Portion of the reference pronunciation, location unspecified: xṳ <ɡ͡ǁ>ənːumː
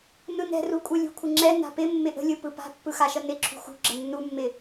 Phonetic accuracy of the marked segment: correct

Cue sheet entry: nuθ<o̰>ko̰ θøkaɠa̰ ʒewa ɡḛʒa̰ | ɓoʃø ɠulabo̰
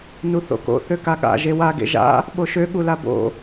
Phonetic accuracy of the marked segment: correct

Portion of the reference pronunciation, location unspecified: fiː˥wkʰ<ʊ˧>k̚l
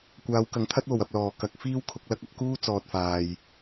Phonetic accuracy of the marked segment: correct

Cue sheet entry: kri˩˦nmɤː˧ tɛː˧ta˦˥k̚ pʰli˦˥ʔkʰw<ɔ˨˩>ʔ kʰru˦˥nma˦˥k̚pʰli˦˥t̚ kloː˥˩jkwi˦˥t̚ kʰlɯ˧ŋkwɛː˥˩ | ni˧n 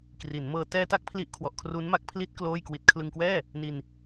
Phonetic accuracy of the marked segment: correct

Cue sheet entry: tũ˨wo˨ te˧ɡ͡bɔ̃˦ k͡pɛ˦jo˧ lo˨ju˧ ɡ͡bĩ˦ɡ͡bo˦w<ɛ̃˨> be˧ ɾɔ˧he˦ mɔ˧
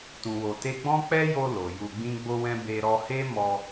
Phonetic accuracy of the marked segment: incorrect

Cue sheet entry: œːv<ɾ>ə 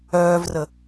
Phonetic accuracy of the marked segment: incorrect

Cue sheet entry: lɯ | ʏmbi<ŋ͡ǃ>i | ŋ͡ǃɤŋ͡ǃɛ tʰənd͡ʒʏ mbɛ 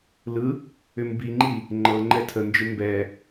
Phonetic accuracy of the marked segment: correct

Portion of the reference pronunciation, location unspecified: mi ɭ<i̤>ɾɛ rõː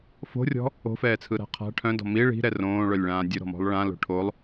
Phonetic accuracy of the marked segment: correct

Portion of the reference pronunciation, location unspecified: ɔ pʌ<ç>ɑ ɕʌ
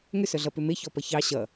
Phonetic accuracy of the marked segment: correct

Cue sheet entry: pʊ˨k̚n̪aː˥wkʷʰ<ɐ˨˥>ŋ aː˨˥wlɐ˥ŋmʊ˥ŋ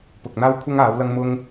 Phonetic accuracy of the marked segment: incorrect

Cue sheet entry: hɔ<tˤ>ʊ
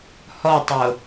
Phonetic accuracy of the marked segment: correct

